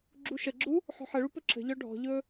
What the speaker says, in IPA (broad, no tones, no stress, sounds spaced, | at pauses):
ɡ͡ǁ u ʃ ə ɡ͡ǁ u | ħ ɔ̤ ħ ə ɭ u p ɵ ǁ ə̤ ʎ ɔ ɖʱ ɔ̤ ʎ ɵ